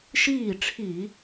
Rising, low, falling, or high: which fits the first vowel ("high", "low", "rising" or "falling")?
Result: falling